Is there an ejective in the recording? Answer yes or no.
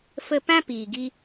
no